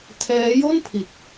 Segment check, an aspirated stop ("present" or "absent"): present